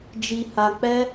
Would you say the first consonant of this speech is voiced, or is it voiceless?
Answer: voiced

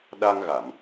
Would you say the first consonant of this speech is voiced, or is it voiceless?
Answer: voiced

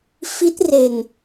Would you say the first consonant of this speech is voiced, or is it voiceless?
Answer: voiceless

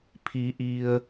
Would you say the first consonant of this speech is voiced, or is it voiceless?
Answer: voiceless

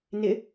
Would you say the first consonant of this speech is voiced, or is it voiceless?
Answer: voiced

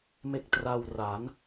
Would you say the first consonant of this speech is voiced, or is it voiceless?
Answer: voiced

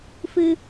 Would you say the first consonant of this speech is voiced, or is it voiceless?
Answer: voiceless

